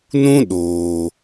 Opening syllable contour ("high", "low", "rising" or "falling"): high